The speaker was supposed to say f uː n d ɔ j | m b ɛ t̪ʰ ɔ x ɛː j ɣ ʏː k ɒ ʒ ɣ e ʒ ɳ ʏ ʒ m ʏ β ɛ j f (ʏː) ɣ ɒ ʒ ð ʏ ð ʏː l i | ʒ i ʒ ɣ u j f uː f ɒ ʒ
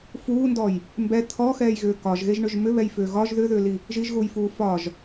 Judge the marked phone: correct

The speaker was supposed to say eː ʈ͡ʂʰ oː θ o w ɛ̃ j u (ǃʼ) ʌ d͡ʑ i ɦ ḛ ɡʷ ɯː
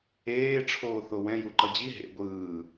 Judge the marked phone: incorrect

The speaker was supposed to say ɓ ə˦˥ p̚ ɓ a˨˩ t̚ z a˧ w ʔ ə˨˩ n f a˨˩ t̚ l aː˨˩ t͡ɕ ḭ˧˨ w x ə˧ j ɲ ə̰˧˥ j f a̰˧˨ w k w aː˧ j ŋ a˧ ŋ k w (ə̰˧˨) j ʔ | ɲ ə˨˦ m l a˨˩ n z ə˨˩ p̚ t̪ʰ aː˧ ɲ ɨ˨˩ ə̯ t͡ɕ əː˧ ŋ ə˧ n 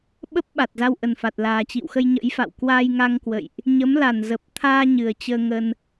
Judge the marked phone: correct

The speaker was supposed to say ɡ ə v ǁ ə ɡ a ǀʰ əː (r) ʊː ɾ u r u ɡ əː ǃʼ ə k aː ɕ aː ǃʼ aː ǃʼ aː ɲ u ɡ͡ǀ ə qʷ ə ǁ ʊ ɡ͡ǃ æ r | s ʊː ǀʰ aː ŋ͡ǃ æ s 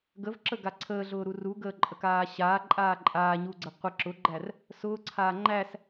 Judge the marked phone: incorrect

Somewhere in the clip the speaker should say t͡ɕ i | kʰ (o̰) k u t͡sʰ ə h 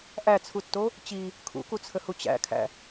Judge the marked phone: incorrect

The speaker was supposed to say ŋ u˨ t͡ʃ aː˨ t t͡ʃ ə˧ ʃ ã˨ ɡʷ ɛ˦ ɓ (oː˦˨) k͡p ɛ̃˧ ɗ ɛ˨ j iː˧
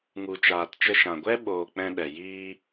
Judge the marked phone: incorrect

